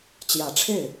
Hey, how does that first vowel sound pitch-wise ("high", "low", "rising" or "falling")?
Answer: low